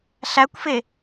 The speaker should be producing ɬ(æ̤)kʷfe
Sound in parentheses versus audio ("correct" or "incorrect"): incorrect